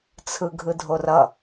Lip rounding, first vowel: unrounded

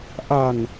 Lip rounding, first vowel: unrounded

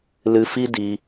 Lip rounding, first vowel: unrounded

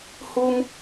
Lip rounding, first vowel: rounded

